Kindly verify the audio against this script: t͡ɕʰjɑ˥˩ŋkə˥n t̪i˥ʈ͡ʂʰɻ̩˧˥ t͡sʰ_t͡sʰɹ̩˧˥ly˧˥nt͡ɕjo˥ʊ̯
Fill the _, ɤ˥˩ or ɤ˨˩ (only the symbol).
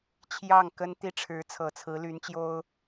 ɤ˨˩